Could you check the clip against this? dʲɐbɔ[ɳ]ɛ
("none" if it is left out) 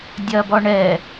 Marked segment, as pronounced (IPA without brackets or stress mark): ɳ